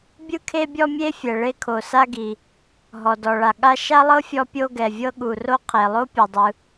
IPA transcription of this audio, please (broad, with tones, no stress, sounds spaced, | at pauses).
bʲ ɯ˥ kʰ e˥ bʲ ɔ˥ mʲ e˥ fʲ ɛ˩ ɭ e˥ kʰ o˩ s a˥ ɡ i˩ | ɦ ɔ˩ d ɔ˩ ɭ a˩ ɠ a˥ ʃ a˥ lˠ ɤ˥ fʲ ɔ˥ pʲ o˥ ɡ ɛ˩ vʲ ɤ˥ ɠ u˩ r o˥ qʰ e˩ lˠ o˥ pʲ ɛ˩ dˤ ɯ˩